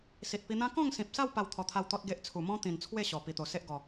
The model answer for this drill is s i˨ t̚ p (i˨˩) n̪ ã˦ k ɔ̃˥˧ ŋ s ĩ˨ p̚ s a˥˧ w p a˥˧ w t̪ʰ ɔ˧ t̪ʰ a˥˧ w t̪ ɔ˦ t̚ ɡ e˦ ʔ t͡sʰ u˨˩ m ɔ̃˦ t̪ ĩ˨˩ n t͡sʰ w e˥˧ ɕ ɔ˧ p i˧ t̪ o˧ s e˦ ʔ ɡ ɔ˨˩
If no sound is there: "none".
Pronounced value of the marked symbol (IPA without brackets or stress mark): i˧